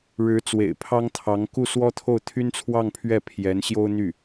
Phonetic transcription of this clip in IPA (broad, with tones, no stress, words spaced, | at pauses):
ɻɻ̩˧˥t͡swḛ˨˩ɪ̯pʰɑ˥ŋt̪ʰɑ˧˥ŋ ku˥˩swɔ˥t̪ʰo˥˩ʊ̯ t̪ʰy˥nt͡sʰwɑ˥˧ŋpʰɥɛ˥˩ pʰjɛ˧˥nɕjo˥ʊ̯n̪y˥˩